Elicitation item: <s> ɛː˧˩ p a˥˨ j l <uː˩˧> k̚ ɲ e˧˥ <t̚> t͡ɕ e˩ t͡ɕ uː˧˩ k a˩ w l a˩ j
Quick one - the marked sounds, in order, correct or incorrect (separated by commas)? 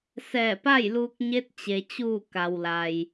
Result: correct, incorrect, correct